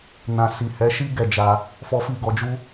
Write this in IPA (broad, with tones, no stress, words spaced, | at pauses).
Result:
nã˨ si˨hɛ˨˦ʃi˦ ɡɛ˦˨d͡ʒa˧ | fɔ˧fi˧ ɡɔ˧d͡ʒu˦